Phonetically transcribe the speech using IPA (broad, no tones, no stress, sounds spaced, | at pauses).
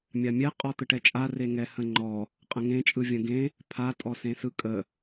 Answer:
mʲ a mʲ ɛ qʼ ɔ t̪ ə ʈ ɛ t͡ʃʼ a r e ŋ ɛ h ə̃ ŋ͡ǃ ɔ | qʼ ə̃ ŋ ẽ t͡ʃʼ ɯ vʲ ə̃ ɡ ẽ | pʰ a tʼ ɔ s ẽ s ɯ kʼ ə